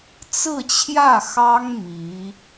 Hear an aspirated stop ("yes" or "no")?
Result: yes